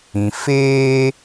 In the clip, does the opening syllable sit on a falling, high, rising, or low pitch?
low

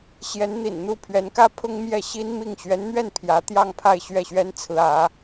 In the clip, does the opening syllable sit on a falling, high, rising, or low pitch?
rising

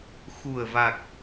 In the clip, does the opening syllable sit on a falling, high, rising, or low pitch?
low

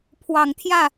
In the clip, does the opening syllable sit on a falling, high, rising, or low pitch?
low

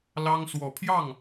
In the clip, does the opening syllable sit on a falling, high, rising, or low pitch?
high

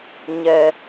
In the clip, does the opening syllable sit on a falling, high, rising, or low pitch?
high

